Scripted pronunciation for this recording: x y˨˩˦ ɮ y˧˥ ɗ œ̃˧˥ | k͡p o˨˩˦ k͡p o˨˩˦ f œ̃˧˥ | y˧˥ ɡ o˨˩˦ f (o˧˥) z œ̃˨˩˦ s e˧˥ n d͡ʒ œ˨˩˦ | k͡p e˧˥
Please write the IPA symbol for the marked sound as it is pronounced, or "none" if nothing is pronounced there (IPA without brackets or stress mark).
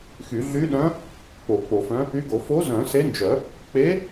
o˧˥